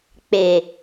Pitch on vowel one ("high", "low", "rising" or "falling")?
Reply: low